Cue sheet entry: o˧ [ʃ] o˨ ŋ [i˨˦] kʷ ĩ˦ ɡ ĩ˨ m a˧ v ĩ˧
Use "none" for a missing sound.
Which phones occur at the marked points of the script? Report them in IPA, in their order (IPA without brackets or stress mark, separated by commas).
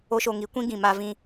ʃ, i˨˦